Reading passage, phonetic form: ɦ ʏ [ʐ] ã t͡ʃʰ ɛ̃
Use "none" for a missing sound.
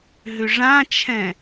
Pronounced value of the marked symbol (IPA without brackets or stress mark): ʐ